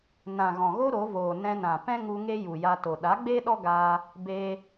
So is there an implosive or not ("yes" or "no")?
yes